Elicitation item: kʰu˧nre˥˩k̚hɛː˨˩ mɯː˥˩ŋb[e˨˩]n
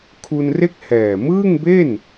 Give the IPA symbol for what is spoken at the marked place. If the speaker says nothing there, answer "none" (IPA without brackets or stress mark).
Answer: e˥˩